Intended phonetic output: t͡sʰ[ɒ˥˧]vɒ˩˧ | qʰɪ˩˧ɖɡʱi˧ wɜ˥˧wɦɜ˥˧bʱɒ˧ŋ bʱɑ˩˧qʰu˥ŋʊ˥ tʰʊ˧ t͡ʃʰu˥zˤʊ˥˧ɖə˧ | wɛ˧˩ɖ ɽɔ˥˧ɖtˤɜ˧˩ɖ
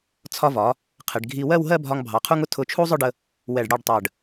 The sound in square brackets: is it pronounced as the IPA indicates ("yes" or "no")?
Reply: no